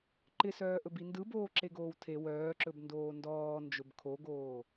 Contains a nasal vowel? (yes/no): no